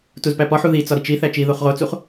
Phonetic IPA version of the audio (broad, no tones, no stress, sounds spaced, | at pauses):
t u z p æ p ɒ ħ u ð i t͡s ɒ ɾ i t͡ʃ i θ æ t͡ʃ i ð o χ ʁ o t͡s u χ